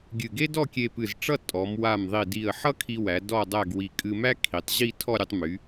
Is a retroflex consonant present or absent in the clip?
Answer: present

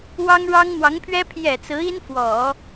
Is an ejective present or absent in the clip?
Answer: absent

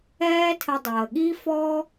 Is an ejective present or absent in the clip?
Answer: absent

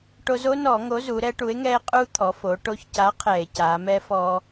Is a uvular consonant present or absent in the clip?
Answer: present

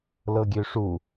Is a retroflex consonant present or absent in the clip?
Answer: present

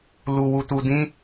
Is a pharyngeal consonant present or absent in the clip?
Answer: absent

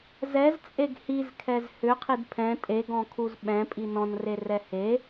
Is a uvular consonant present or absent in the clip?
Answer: present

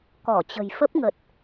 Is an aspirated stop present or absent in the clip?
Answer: absent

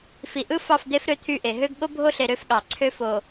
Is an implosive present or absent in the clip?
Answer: present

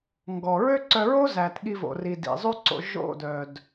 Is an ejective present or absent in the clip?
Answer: absent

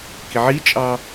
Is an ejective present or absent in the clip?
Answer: present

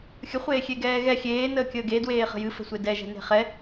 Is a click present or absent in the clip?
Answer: absent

